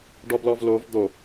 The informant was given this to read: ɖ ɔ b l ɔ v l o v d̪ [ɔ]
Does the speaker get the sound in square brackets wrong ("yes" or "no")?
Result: yes